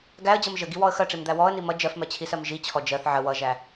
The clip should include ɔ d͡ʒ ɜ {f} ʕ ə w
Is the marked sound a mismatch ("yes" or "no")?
yes